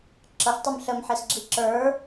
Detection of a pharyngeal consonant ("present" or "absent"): present